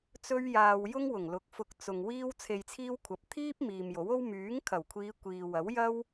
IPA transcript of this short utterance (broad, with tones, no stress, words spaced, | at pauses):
t͡sɵ˥ɥjaː˧w jʊ˥ŋwʊ˨˩ŋlʊ˨˥k̚ fʊ˧k̚ t͡sʊ˨ŋ wiː˥w t͡sʰe˧jt͡sʰiː˥wkʷʰɐ˨˥p̚ t̪ʰiː˥p̚ miː˨mjo˨˥wo˥w myː˨˥ŋkʰɐ˨˩wkʷʰiː˨˧ kʷiː˨wɐ˨˥wjɐ˥w